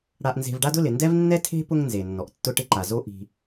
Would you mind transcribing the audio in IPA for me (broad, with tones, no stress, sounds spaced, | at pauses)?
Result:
ɽ a˧ ʔ n z e̤˧ v ɖ a˥ d ʊ˥ l ɪ˩ n d ɛ˥ v nː ɛ˥ tʰ e̤˥ p ʊ˥ ŋ n z e˩ nː ɔ˩ ʔ tː ʊ˧ ʈ ɪ˧ ǃ a˩ z o˥ ʔ i̤˧